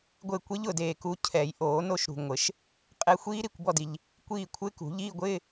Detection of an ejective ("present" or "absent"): present